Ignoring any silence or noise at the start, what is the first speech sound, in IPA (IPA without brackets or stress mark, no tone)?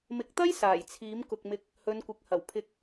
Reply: m